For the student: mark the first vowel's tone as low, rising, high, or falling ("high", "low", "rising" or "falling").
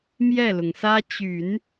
falling